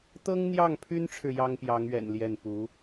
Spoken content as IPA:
t̪ ɤ˥ ŋ n̪ j ɑ˥˩ ŋ pʰ y˥ n ʈ͡ʂʰ ɻ̩˨ j ɑ˥ ŋ p j ɑ˧˥ ŋ ɥ ɛ̰˨˩ n l j ɛ˥˩ n p u˧˥

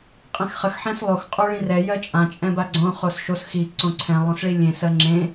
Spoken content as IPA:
qʼ ẽ x χ ə x ħ ɛ̃ s lˠ o x qʼ o ɭ ĩ r ɛ j ɜ t͡ʃʼ ã t͡ʃʼ ɛ̃ b a ɡ͡ǀ õ χ o s ʃ o s x i ǀ õ ǀʰ ɛ̃ lˠ õ s ɭ i lʲ ẽ s ɜ ŋ͡ǁ ẽ

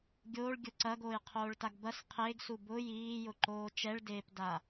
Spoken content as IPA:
ɡʲ oː ɭ ɡʲ ʊ ǀ ɐ ɡ oː j qʰ oː ɭ t a ɡ b ɐ s qʰ eː ɡ s u b ʊ j iː j ʊ ǃ oː t͡ʃ ɛ ɭ d eː p d a

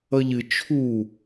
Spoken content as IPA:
ʌ ʎ ɨ t͡ʃʰ u

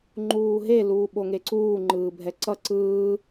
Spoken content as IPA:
ŋ͡ǃ uː ɦ e l uː ɓ o ŋ e ǀ uː ŋ͡ǃ ɯː bʱ ɛ ǀ ʌ ǀ ɯː

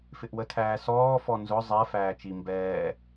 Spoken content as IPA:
f ɪ ʔ w ə tʰ æː s ɔː f ɔ n z ʊ zˤ ɛ f æː t͡ʃ i m b ɛː

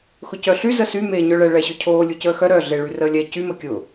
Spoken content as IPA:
x ʊ c œ ɬ y z ə s y m eː ɲ œ ɭ ɛ ɭ ɛ ɕ ʊ cʰ oː lʲ u c əː x œ ɾ œ ɮ e ɭ y r əː lʲ ɛ c y m ə kʲ ʊ

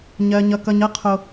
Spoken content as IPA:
ɲ ɜ˦ ɲ ʌ˦ k ʌ˦ ɲ ʌ˦ qʰ o˧

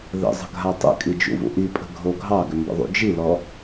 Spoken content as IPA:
ð ə̰ zˤ ə̤ ɡʱ a tˤ ə̰ kʼ i d͡ʒ ṵ v ṵ ʔ i pʼ ə̤ ɡʱ o ɡʱ ɑ ɡ ʏ m b ə̰ ðˤ ṵ d͡ʒ i l ɔ

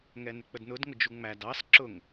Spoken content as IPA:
ŋ ɛ n ɪ k͡p ə d n ʊ d ŋ ʊ d͡ʒ u ŋ͡m æ d ɑ s ǁ ʊ ŋ

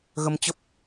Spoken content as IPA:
ɣ ə˧ m t͡ɕ ə˦˥ p̚

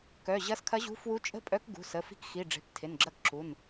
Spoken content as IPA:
k œ˩˧˩ ʑ ɐ˧˥ s kʰ ɐ˧˥ ʑ ṳ˧˥ f w u˧˥ t͡ʃʼ ə̤˥˧ pʼ œ˧˥ k ɡ ṳ˩˧˩ s ə˩˧˩ f i̤˧˥ k x i˩˧˩ ɖ͡ʐ e̤˩˧˩ p tʰ ɪ˩˧˩ n ɡ͡ǁ ɐ˧˥ k ǁ u˩˧˩ n

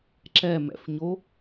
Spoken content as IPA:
ǁ ɛ m ɛ̰ f ɲ o

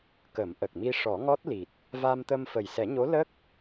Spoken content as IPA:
k ə˨˩˦ m ʔ ə˨˩ k̚ m i˧ ʂ ɔ˨˩˦ ŋ ɔ˦˥ t̚ l i˨˩ t̚ | v a˧ m t̪ ə˧ m f ə˨˩ j s ɛ˨˩˦ ɲ o˧˥ l ə˦˥ k̚

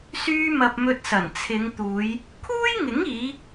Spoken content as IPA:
s yː˧ m ɐ˨ p̚ m ɵ˧ t̚ s ɐ˨˩ n t͡sʰ ɪ˨˧ ŋ t̪ uː˨˧ j | kʰ uː˥ j ŋ ɪ˨˥ ŋ iː˨˧

